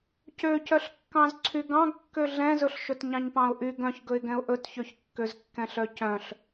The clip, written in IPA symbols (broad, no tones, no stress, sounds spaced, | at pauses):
c ø c œ ɬ kː ɑ̃ z ǀʰ y ɡ ɑ̃ ɡ kː ø ɮ ɛ̃ z ɵ ɬ ʃ ɵ t ɲ ɑ̃ ɲ p ɑ̃ ʊ̯ ʔ y ɡ œ̃ ç ɡ ɵ ɪ̯ ɡ ɛ̃ ʊ̯ ʔ ɵ t ç ø ç kː ø z kː ɛ̃ ɬ œ c œ̃ ɬ